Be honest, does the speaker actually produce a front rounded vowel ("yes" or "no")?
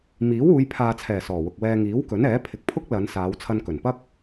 no